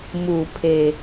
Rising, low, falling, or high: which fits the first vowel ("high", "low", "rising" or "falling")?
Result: low